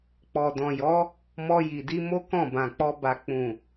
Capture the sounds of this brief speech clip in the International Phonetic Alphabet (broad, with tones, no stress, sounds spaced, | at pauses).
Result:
k͡p ɔ˨ d ɔ̃˨ j ɔ˨˦ | m ɔ˧ j i˨ d i˧ m o˦ k ɔ̃˦˨ b ã˨ k͡p ɔ˧ b a˨ k͡p ũ˨